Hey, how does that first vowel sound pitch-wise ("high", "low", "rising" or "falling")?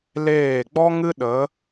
falling